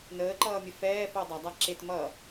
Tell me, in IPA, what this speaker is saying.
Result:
n əː ǃ ʌː mʲ ə f ɛː f o dˤ a dˤ a ǁ e t m ʌ

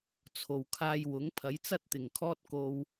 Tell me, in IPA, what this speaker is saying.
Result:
t͡sʰ o˨ w kʰ aː˧ j w ʊ˨˥ ŋ pʰ ɐ˨˥ j t͡s ɐ˥ t̚ t̪ ɪ˨˩ ŋ kʰ ɔː˥ t̚ k o˧ w

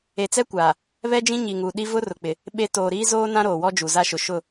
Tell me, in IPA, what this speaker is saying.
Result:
e˨ t͡s ɛ˦ kʷ aː˨ | β ɛ˦ d͡ʒ ĩ˦ ɲ i˨ ŋ u˨ ɗ i˦ v ʊ˦ r ʊ˨ k͡p ɪ˨ | ɓ e˨ t oː˨ ɾ iː˦ z oː˦ n ã˦ ɾ oː˨ w ɔ˦ d͡ʒ u˨ z a˦ ʃ ʊ˨ ʃ ʊ˦˨

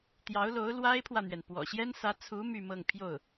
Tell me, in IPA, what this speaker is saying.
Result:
t̪ j ɑ˧˥ ʊ̯ l o˧˥ ʊ̯ l w a˥ ɪ̯ pʰ w ä˨ n̪ ɥ ɛ˩ n p w ɔ̰˨˩ ɕ j ɛ˥ n s ä˧˥ t͡sʰ u˧˥ m y˥˧ m ɤ˥˧ ŋ pʰ j o˥˩ ʊ̯

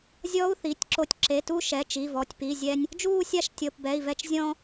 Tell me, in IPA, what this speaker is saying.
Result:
zʲ ɔ˦˥ u̯ θ i˩˧˩ tʲ ǁ o˧ tʲ ǁ e˩˧˩ t u˥˧ ʃ ɛ˩˧˩ t͡ʃ i˩˧˩ v ɔ˩˧˩ tʲ p i˩˧˩ zʲ ɛ˧ nʲ | d͡ʒ uː˥˧ sʲ a˥˧ ʃ tʲ ɤ˩˧˩ p b ɛ˩˧˩ i̯ v ɛ˧ t͡ʃ zʲ ɔ̃˧

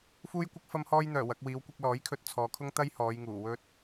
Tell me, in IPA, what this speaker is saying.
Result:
f uː˥ j kʷ ɪ˥ k̚ f ɐ˥ m h ɔː˥ j n̪ œː˨˩ w ɐ˨˥ k̚ w iː˨˧ w kʷ ɪ˧ k̚ l ɔː˨˥ j kʰ ɵ˧ t̚ t͡sʰ ɔː˨˧ kʰ ʊ˥ ŋ t̪ ɐ˥ j h ɔː˨˧ j ŋ uː˨˩ w ɵ˥ t̚

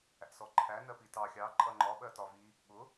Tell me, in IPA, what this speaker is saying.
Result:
æ̰ s ɔ ǃʰ æ n ɜ p i t ɑ xʲ ɑ ǃʼ ʌ ŋ͡ǃ ɒ ɓ ɜ t ɒ v i | ɓ ʊ

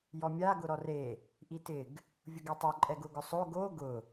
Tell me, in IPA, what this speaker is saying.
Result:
j ɔ mʲ a ɡ ʊ ɾ ɔ r e | ʔ i t ɪ ɡ | vʲ ʊ ɡ ɛ tˤ o ǃʼ ɛ ɡ ʊ ɡ ʊ sˤ o ɡ o ɡ ʊ

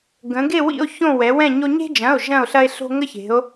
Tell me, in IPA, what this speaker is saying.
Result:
ɡ ə̃˩˧ ɡ e˦˨ w ḭ˦˨ o̯ ç õ˦˨ w ɛ˩˧ w ɛ̃˦˨ ɲ o˦ ɲ e̤˦ d͡ʒ ɐ̃˩˧˩ o̯ ʒ ɐ̃˦˨ o̯ ɬ ɐ˦ e̯ ɬ o̤˦ ŋ ə˦ ç e̤˩˧ o̯

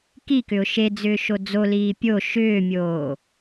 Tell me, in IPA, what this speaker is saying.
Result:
k i k ʏ ʊ̯ ʃ e d͡z ʏː ʃ o d͡z o l iː pʲ o ʃ ʏː mʲ oː

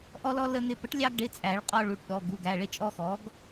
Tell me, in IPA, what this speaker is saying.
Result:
ʔ ɔ˧ l ɔ˧ l ə˧ n̪ ɪ˧ p ə˩˥ ʈ lʲ ɑ˧ ɡ ɖ ɪ˩˧˩ t͡sʼ æ˨˩˦ ɭ qʼ ɔ˧ ɭ u˩˧˩ ʈ ɗ ɔ˩˧˩ ɡ u˩˧˩ ɡ æ˩˧˩ ɭ ɪ˧ t͡ʃʼ ɔ˧ x ɔ˩˥ ɡ

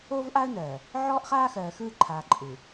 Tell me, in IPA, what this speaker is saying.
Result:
oː˦ v ʔ a˦ ə̯ n ɜː˨ | ʕ ɔː˦ ʔ χ aː˦ x ɜː˨ x ɯː˦˨ ǃʰ aː˨ ǃʼ ɯ˨

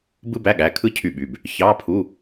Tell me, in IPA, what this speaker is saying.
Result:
b ɯ˥ b æ˧˥˧ ɠ æ˩˧˩ kʰ ɯ˥ cʰ y˦˨ ɓ y˩˧˩ b | ç ɑ˧˥˧ pʰ u˧˥˧

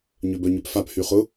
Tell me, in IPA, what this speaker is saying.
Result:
ɲ ø b œ ɲ ø p f a p h y χ ʊ

